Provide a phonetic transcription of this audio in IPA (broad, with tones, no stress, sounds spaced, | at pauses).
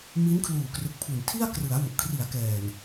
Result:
m i˦˥ n kʰ l uː˨˩ k r ɯ˨˩ k̚ pʰ u˨˩ n tʰ i˥˩ a̯ k r ɯ˩˦ a̯ w u˨˩ ʔ kʰ r i˩˦ a̯ k ɛː˨˩ n